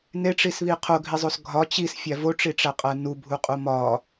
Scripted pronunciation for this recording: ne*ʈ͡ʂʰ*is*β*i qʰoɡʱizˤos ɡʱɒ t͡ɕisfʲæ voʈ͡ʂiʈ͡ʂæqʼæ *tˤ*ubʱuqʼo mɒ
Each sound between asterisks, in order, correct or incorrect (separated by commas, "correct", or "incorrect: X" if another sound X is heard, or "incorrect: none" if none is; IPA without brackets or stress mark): incorrect: ʈ͡ʂ, correct, incorrect: n